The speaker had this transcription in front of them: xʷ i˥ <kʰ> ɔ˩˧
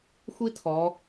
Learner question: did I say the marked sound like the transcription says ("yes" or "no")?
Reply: no